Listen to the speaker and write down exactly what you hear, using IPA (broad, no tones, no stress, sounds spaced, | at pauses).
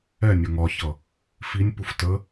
ɛ nʲ ʌ ŋ ɒ ç ʌ | f i nʲ p u f t ə